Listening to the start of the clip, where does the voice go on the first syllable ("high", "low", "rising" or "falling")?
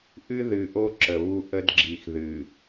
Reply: high